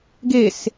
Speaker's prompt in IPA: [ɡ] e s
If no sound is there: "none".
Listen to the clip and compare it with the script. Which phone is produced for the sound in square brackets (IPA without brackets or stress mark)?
ɡ